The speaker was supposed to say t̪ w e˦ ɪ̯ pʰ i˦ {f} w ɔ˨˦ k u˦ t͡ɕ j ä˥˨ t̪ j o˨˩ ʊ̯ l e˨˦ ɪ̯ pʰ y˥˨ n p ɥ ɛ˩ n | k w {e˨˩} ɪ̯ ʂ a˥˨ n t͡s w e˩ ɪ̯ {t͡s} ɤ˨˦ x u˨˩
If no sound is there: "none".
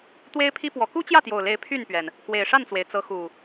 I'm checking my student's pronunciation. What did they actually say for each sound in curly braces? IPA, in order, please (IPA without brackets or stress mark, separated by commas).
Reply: p, e˨˩, t͡s